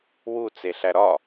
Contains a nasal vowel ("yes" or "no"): no